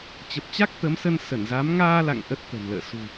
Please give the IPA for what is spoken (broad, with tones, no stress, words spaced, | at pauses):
t͡ɕə˨˩p̚t͡ɕa˦˥k̚ t̪ə˨˦msə˧n sə˧˩nza˨˦m ŋaː˧la̰˧˨ŋ ʔə˦˥t̚t̪ə̤˨˩nlə̰ː˧˨ sṳ˨˩